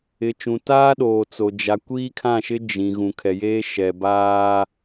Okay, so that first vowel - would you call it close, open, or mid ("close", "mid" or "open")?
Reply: close